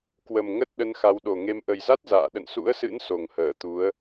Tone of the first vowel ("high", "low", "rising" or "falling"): low